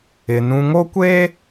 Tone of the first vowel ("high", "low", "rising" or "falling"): low